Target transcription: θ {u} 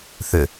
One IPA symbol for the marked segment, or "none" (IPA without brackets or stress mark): ʏ